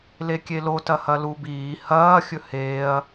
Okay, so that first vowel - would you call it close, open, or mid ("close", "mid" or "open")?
mid